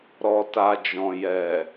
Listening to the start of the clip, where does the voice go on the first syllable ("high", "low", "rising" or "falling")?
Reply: low